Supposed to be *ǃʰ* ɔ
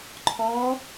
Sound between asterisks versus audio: correct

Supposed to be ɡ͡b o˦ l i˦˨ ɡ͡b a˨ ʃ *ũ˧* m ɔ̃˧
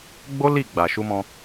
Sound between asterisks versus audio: incorrect: u˧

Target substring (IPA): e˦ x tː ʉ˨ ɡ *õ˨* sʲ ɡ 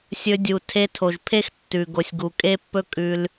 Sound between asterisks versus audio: incorrect: o˨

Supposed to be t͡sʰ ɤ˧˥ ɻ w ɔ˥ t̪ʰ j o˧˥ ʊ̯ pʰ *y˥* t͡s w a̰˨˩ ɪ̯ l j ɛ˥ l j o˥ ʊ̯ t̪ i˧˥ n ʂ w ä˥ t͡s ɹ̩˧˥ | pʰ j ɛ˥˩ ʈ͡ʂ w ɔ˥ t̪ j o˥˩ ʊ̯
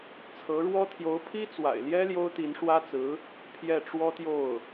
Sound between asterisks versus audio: incorrect: i˥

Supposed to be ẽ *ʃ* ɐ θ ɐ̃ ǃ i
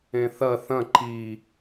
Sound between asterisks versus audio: incorrect: θ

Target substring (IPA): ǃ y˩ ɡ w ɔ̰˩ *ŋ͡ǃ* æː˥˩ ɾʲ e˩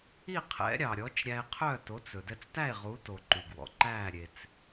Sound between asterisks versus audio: incorrect: ǃ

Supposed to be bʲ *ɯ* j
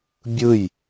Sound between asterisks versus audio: correct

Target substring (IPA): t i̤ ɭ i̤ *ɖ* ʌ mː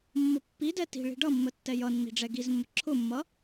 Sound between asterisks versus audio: correct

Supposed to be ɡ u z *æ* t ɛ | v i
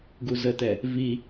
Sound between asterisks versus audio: incorrect: ə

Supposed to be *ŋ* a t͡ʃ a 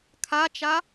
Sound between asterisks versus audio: incorrect: kʰ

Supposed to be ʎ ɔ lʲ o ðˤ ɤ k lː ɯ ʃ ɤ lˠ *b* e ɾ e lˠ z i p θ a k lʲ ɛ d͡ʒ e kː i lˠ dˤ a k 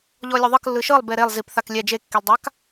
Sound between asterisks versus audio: correct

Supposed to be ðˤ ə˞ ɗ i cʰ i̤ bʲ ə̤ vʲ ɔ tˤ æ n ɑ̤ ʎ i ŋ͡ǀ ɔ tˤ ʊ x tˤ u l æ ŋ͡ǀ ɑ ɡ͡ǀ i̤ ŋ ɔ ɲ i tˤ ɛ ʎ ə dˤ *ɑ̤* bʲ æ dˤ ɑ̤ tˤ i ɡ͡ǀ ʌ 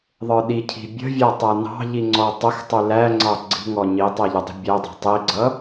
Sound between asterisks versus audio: incorrect: ə̤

